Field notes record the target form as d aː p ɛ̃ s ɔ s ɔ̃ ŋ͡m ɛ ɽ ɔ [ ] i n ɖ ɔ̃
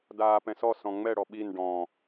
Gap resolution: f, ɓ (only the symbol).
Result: ɓ